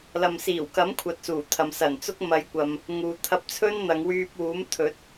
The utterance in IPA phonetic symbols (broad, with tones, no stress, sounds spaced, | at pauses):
l ɐ˨ m s iː˨˩ w k ɐ˨˥ m kʷʰ ɐ˨ t̚ s uː˨˩ t̪ʰ ɐ˨ m s ɐ˨˩ n t͡s ʊ˥ k̚ m ɐ˨˧ j kʷ ɐ˨ m | ŋ uː˨ t̪ʰ ɐ˧ p̚ t͡sʰ ɵ˥ n n̪ ɐ˨˧ ŋ w yː˧ p̚ w uː˨˥ m t̪ʰ ɵ˨˥ t̚